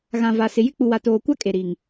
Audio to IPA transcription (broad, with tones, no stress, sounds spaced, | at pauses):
ɣ ã˨ v a˨ s ɪ˨ j ɪ˦ k͡p u˨ w a˨ t oː˨ kʷ a˦ kʼ e˨ ɾ i˨ ŋ